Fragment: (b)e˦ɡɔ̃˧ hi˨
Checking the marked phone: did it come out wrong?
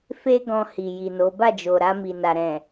yes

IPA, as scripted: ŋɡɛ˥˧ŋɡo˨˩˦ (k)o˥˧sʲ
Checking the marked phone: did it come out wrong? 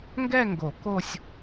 no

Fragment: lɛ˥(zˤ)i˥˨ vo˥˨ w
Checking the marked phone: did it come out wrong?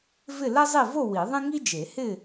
no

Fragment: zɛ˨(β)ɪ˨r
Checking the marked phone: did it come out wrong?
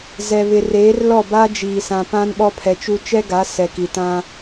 no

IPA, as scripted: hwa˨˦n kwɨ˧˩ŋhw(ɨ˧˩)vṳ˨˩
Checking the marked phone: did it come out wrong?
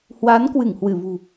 no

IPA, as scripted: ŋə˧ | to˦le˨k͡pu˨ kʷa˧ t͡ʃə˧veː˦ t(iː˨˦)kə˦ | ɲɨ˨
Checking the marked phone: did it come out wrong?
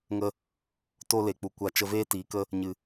no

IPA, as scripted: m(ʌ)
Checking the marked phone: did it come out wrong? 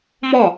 yes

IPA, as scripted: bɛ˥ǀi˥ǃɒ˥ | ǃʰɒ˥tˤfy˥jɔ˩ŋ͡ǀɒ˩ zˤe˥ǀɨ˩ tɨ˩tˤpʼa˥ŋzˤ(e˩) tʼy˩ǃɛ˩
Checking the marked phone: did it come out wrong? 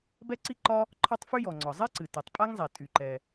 no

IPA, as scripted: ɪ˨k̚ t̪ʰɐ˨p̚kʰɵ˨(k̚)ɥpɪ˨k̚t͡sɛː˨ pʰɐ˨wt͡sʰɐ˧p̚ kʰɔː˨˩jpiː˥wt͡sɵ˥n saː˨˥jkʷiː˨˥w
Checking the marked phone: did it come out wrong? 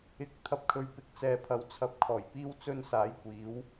yes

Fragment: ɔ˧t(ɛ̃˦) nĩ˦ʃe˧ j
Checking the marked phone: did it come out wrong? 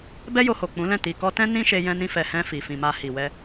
no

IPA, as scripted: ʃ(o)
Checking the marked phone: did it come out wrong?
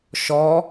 yes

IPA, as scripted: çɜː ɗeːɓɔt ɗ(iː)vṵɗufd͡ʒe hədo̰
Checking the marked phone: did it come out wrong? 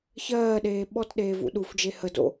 yes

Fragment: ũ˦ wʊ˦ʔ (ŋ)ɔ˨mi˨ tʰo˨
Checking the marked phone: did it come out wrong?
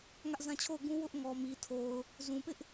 no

